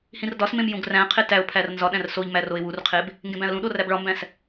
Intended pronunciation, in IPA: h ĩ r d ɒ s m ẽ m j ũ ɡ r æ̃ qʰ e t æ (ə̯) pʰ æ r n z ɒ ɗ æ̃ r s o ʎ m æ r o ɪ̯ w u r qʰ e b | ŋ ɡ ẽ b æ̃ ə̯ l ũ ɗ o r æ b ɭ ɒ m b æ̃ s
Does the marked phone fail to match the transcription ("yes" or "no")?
yes